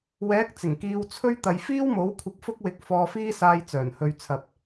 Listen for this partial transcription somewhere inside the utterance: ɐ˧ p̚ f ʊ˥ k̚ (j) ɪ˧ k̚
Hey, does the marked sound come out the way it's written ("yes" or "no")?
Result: no